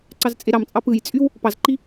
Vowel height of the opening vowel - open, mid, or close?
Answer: open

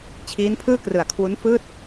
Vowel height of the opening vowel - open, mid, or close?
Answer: close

